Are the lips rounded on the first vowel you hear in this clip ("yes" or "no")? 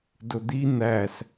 yes